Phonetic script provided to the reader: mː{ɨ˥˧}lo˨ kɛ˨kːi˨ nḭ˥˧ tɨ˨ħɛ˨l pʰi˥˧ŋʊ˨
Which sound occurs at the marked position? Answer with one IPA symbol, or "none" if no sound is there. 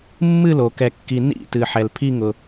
ɨ˥˧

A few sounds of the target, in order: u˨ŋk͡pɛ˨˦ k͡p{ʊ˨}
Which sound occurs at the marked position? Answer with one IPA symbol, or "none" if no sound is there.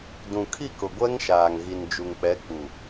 u˨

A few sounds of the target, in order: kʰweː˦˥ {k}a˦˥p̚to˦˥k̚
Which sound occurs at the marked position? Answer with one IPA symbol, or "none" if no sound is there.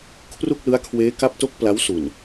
k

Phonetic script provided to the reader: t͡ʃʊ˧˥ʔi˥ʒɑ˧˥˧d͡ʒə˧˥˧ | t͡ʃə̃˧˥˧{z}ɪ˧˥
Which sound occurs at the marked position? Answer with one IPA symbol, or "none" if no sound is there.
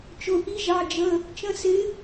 s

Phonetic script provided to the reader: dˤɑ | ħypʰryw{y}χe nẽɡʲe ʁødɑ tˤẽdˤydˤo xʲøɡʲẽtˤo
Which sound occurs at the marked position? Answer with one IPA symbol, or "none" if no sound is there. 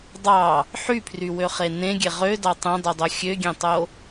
ø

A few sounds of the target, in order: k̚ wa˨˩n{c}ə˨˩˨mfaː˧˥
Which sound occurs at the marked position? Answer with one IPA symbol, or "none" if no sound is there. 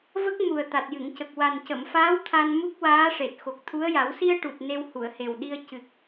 c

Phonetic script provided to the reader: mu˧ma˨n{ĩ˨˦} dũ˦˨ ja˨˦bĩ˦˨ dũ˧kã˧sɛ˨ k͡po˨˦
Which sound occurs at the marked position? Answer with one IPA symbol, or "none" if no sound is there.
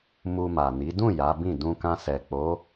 i˨˦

